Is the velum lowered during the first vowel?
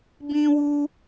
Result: yes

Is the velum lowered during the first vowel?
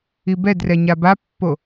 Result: no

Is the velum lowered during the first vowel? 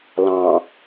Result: yes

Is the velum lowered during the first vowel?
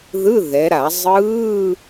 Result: no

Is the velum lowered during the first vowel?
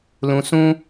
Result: yes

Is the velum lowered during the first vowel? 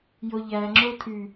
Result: no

